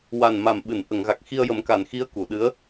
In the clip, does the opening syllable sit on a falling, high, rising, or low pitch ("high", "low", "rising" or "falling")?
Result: low